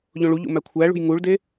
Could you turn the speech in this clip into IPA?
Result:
ʎ õ ɭ u ʎ ṵ m æ kʷʰ æ ɭ ṳ j ŋ u ɭ d e

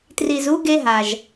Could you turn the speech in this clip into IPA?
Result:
t r i˩ z u˧ ɡ e˧ ɦ a˩ ʒ

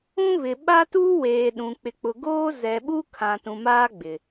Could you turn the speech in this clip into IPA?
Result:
ũ˦ β ɪ˨ ɓ a˦ t uː˦ w eː˨ ɗ ũ˨ k͡p ɪ˨ k͡p ʊ˨ ɡ oː˦ z ɛ˨ ɓ u˦ kʰ ã˨ t ũ˨ m aː˦ ɡ͡b ɪ˨

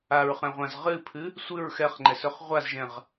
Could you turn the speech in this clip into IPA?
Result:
a ɹ χ ɛ̃ ʁʷ ã z ʁ ɨ pʰ ɨ | sʷ ɨ ɹ x ɛ χ ŋ͡ǃ ɛ s ɵ χ ʁʷ a z ʒ ɛ̃ ʁ

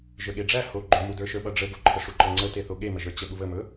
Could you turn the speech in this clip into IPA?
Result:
ʒ ə˞ ɠ e ɖ͡ʐ æ h o ɡ͡ǃ ɵ m u d ə˞ ʃ ə˞ ɓ ʌ ɖ͡ʐ ə ɡ o ǃʰ ə ʂ u ǃ ʌ ŋ͡ǀ ə t e θ o ɠ e m ə ʒ ə˞ t͡ɕ ə ɓ u β ə m ɵ

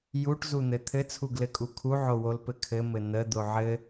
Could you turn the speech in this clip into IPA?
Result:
j u ʈ z u n̪ ɘ t̪ʰ ɘ t͡sʰ u ɡ l ɘ kʼ u kʰ u ʕ o w o l p ɘ kʰ ɘ m ɘ n̪ ə d̪ o ʕ ɘ

